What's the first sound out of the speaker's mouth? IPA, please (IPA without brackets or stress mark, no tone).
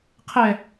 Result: qʰ